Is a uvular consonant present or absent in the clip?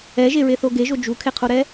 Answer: present